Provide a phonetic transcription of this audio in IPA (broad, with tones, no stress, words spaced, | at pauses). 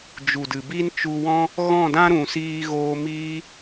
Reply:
d͡ʒu˨dɨ˨bi˦n t͡ʃu˧wɔ̃˦ | ɣɔ̃˦˨dã˦ɾũ˨siː˧ ɣoː˧miː˦